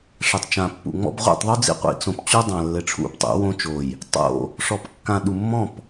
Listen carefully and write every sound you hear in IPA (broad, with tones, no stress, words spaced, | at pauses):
ʂɘ˨tˤt͡ʃã˨ pːṵ˨ŋ͡mɔ̰˦b ʁʷḭ˦˨tˤðˤu˦d͡zḭ˦˨ qʷḭ˨t͡sõ˨p t͡ɕu˦dˤã˨lːɘ˨ ʈ͡ʂʰṵ˦ptˤṵ˨˦wõ˦t͡ʃo˨j | tˤo̰˦˨ | ʂɔ˨pkːã˨ ɗu˨mːɔ̃˦˨p